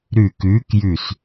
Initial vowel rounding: rounded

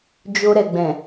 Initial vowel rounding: rounded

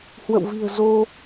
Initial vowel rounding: unrounded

